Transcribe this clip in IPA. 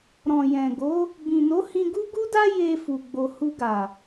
ɾ ɔ̃˨ j ɛ̃˨ ɡ o˨˦ | b ĩ˨ n o˨˦ h ĩ˧ ɡ u˦ ɡ u˦ d a˦ j e˧ f u˨ ɡ͡b o˧ h u˧ ɡ a˨

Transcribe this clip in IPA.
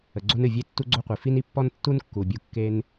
ə˩ ɡ͡ǀ o˧ n ɨ˩ vʲ e˧ tː u˧ ɡ͡ǀ o˧ qʷ i˩ f i˧ n i˧ pː ɔ˧ n tː u˧ n kː u˩ bʲ u˩ kː e˧ n

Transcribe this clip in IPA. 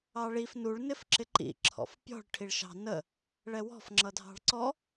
ɑ ɭ i f n u ɭ n ɪ f ǁ ɪ ǃ ḭ ǁʰ ɔ̰ f pʲ ɔ̤ ɭ ʈʰ i ɭ ʃ ɑ̤ n ə | ɭ ɛ w ɔ̤ f ŋ͡ǁ ʌ dʱ ɑ̤ ɭ ǀ ɔ

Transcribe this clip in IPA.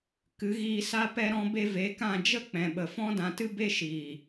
k ɨ˨˦ ɣ iː˧ s a˦ p ɛ˧ ɾ ɔ̃˧ b e˧ v e˨˦ k ã˦˨ d͡ʒ ə˦ k͡p ɛ̃˨ ɓ ə˨ f ɔ̃˦ d ã˧ t ɨ˦ b e˦ ʃ iː˨

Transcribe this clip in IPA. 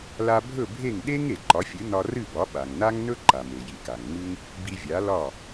l a˧ bʱ ɵ˥˩ bʱ e˥˩ ŋ ɗ e˥ ŋ e˩ ǃ ɒ˩˥ fʲ ɨ˩˥ n ɒ˧ r ɨ˥˩ b ɒ˩˥ ɓ a˩ ŋ n a˥ ŋ n ɵ˥ ǃ a˩ m e˩ j i˩ k a˩ ŋ ŋ͡m ɨ˥ ŋ | b i˧ vʲ a˩˥ l ɒ˥˩

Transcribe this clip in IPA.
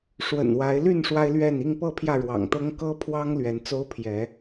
ʂ w ə̰˨˩ n w a˨˦ ɪ̯ l y˥˨ n ʂ w a˦ ɪ̯ l ɥ ɛ˥˨ n i˥˨ ŋ p ɤ˥˨ pʰ j ä˥˨ ɻ w ɑ̰˨˩ ŋ t̪ ɤ˦ ŋ k ɤ˦ pʰ w ɑ˦ ŋ l ɥ ɛ˨˦ n t͡s o˦ ʊ̯ pʰ j ɛ˨˦

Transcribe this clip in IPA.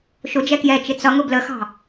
ʃ ʊ d͡ʒ ɛ k j ɛ t͡ʃ ɪ t͡s ʌ ŋ ʊ b l ə x ɑ̤

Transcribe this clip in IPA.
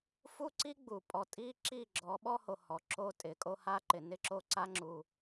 f u˦ ǀ i˦ ɡ͡b u˨ pʼ ɔ˨ tʼ i˦ ǁ i˦˨ ɡ͡ǁ ɔ˨˦ ɓ ɔ˦ h o˨ h ɔ˨ ǁ o˦ tʼ ɪ˨ kʼ o˦ h a˦ ǃ ɪ˨ n ɪ˦˨ ǁ o˦˨ ǀ a˦ ŋ͡ǁ u˦

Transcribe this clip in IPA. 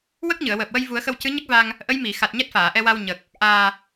w ə˦˥ k̚ ɲ ɨ˨˩˨ ə̯ w əː˨˩ p̚ w ə˧ j v u˨˩˦ ə̯ x ə˧ w c ɨ˧˥ ɲ ə˦˥ k̚ v a˧ ŋ | ʔ ə˧˥ j m i˨˩˨ x a˨˩ t̚ ɲ ɛ˦˥ t̚ f aː˨˩˨ ʔ ɛ˧ w a˧ w ɲ ə˨˩ k̚ | ʔ aː˨˩

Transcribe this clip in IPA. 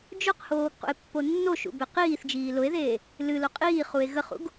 d͡ʒ ʊ q h oː ɡ q ṵ e̯ pː o nː o ʃ ṵ b e q iː θ d͡ʒ iː l ʊ e̯ ð eː | l ɨ l o qʼ iː χ u e̯ ɣ ə χ ṵ ɡ

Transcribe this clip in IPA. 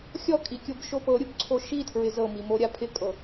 xʲ ɔ kʼ i kʲ o b ʃ o p ɤ ɾʲ u b ǀʰ o ʃ i tʰ ɹ ɪ z ɤ m i m o ɾʲ a pʰ ɪ kʼ ɤ

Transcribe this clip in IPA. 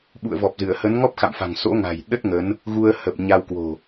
ɓ ṵ˧˨ ə̯ v ɔ˨˩ p̚ z ɨ˧˩ ə̯ h ə˨˦ n ŋ ɔ˦˥ p̚ x a̰˧˨ m f a̤˨˩ ŋ s o̰˧˥ ŋ a̤˨˩ j ɗ ə˦˥ t̚ ŋ ə˨˦ n | ɣ u˧ ə̯ h ə˨˩ p̚ ɲ a˧ w k w o̤˨˩

